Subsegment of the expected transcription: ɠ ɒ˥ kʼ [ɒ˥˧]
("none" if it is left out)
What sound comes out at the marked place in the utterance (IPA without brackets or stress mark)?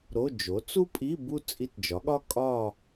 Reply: ɒ˥˧